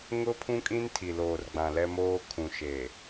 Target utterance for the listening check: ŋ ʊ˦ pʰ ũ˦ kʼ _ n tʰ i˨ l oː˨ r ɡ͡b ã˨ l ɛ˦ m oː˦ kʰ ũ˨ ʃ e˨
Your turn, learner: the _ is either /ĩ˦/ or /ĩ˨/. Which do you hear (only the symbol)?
ĩ˦